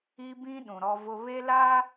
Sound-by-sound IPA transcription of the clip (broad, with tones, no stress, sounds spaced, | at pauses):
i˦ b ĩ˦ ɗ ũ˨ ɾ ɔ˦ v ʊ˦ β e˦ l a˦